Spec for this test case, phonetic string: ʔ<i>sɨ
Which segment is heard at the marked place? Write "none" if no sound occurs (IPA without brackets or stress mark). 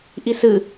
i